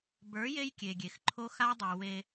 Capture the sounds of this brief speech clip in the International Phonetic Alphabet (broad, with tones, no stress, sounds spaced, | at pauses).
b ə˞˨˦ j e˦ j kʲ e˨ ɡʲ e˨ x ǃʰ o˦ x a˦ dˤ ɛ˨ w e˦